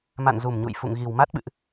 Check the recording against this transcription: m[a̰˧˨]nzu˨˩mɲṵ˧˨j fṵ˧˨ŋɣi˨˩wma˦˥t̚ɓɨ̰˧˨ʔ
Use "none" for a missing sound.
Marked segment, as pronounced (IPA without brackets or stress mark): a̰˧˨